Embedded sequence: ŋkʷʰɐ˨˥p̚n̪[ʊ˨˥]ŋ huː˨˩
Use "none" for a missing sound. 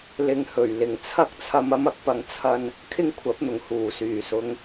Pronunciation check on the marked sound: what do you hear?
ʊ˨˩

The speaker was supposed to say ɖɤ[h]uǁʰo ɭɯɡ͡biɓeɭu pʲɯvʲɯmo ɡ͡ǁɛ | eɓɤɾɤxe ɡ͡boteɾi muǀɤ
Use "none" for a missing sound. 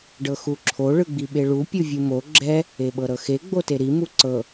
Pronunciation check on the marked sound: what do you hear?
x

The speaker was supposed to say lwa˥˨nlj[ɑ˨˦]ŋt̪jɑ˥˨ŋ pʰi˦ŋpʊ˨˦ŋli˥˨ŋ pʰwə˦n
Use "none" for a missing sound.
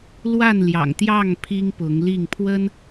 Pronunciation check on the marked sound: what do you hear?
ɑ̰˨˩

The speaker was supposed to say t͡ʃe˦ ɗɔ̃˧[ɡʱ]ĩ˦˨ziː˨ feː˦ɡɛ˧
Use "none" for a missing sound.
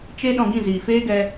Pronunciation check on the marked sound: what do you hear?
ɡ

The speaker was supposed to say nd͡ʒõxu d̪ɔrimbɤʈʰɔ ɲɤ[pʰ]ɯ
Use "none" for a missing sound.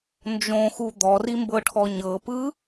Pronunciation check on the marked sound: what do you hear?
p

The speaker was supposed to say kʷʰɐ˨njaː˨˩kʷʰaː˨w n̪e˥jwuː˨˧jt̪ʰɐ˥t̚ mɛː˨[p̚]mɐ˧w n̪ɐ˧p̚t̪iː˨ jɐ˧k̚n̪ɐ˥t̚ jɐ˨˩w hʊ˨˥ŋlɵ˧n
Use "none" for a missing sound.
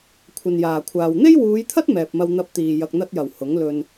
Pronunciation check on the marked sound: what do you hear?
p̚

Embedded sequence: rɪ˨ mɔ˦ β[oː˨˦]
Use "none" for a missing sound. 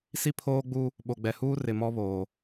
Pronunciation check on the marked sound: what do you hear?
oː˨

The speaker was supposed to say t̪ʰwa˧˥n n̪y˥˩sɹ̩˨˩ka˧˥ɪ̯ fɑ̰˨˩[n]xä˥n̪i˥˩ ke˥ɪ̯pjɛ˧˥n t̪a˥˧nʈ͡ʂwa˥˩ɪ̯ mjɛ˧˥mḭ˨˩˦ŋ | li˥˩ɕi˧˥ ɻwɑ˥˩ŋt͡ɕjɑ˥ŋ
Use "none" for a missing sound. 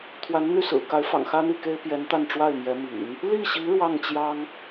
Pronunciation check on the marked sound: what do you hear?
ŋ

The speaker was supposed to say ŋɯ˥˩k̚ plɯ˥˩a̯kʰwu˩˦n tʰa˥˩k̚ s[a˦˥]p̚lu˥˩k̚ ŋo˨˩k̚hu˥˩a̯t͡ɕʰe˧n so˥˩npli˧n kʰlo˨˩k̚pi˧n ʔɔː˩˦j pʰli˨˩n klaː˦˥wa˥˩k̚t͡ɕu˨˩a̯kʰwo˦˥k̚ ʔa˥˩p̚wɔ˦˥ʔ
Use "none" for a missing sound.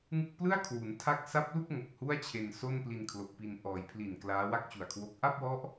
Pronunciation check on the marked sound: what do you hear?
a˦˥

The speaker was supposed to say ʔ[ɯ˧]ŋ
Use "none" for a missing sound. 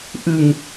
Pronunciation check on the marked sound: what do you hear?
ɯ˧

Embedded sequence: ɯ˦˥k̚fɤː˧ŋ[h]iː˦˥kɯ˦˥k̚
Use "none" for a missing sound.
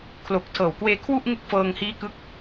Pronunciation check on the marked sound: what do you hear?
h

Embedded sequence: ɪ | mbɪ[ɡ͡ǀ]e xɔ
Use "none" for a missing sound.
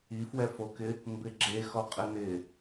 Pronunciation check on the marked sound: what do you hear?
ɡ͡ǁ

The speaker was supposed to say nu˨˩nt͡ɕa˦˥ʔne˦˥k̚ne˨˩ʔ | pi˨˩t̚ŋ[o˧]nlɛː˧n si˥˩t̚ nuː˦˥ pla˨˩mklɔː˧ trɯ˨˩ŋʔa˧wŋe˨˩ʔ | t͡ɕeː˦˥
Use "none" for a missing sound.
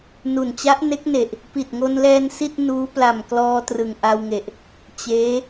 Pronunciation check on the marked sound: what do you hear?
o˧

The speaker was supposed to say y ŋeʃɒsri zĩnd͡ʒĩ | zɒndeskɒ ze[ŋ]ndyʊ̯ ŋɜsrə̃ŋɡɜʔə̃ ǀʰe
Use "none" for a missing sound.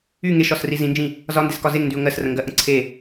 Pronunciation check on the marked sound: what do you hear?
ŋ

